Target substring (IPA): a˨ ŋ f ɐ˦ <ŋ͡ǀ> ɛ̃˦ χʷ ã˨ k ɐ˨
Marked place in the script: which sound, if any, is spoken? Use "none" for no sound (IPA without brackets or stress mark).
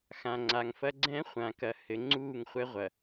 ɡ͡ǀ